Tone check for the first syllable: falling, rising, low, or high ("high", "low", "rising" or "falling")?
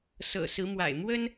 low